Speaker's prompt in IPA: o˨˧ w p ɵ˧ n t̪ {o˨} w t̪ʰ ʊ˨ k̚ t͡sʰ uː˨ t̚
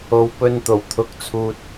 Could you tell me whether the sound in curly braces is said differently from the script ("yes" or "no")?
yes